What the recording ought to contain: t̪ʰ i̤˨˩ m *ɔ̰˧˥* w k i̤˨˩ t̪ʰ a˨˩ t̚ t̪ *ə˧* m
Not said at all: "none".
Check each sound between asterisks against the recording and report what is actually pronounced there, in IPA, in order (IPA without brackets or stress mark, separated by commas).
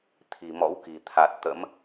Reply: ɔ̰˧˥, ə̰˧˥